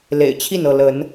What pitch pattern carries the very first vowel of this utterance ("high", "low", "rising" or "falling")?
low